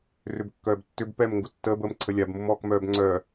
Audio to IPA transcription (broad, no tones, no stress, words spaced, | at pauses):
rʏbkːœːbtːʏb pɛm ŋɡʊtːəːb əːmǀʰəlʲab mʊmɔːkmœːbŋ͡ǀœː